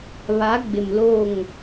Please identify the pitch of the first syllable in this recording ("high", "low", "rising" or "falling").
rising